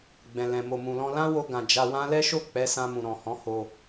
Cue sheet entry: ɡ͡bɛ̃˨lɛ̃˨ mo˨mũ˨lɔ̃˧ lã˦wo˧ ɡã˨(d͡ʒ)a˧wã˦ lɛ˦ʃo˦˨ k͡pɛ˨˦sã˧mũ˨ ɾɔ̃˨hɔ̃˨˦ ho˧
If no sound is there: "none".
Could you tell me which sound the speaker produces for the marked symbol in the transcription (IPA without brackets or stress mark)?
d͡ʒ